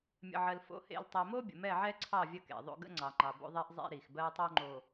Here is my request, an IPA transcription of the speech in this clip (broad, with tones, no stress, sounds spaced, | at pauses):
mʲ ə̰˨ ʕ ɜ˨ l f o̰˨˦ h ḛ˨ l tˤ i˨ m o˦ bʲ ə̰˨ m ɛ˦˨ ʕ ɛ˦ ǀʰ ɑ˦˨ vʲ ə˦ k ḛ˨ ðˤ o̰˦ ɡ ə̰˦ ŋ͡ǀ ɑ˨ ŋ͡ǃ ɑ˨ b o̰˦ ðˤ ɛ˦ ʔ zˤ ḛ˦ ɾ i˨ x b ɜ˦ tˤ o˦ ŋ͡ǃ o˨